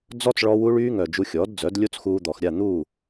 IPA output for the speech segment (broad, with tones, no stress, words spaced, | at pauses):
d͡zɔ˦t͡s ɭɔ˧ wu˧ɭyː˧ŋœ˨ d͡ʒu˧xʲɔ˨˦dd͡zœ˨˦d lʲo˦t͡sxuː˧d̪ɔ˨x ɾʲa˦˨n̪u˦˨